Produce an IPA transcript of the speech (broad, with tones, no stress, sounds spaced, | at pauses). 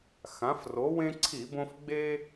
x ã˩˧ f r o˩˧ w ẽ˦ ǀʰ i˧˩˧ b õ˦ f ɡ͡b e˦